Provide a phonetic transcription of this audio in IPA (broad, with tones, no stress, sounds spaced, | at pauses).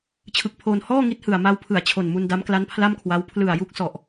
t͡ɕʰ ɯ˨˩ k̚ pʰ oː˧ n h ɔː˥˩ ŋ i˦˥ t̚ h ɯ˨˩ a̯ m a˧ w pʰ ɯ˨˩ a̯ t͡ɕʰ o˨˩ n m u˧ n d a˦˥ m k l a˦˥ n pʰ l a˥˩ m kʰ w a˦˥ w pʰ l ɯ˨˩ a̯ j u˦˥ k̚ s ɔ˨˩ ʔ